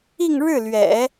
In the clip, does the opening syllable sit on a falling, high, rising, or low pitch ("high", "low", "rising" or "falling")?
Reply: falling